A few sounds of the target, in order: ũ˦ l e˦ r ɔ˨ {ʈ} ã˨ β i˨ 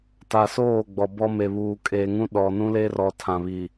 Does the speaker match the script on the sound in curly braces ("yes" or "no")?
no